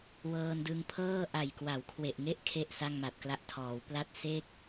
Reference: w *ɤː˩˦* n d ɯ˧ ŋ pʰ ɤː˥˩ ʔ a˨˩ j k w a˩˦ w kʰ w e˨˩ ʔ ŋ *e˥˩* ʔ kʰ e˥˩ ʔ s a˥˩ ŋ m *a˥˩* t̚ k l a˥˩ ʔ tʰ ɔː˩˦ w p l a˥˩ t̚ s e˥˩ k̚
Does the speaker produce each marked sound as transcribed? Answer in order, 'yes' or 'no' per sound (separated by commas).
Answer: no, yes, no